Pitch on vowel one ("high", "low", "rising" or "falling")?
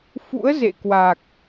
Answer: rising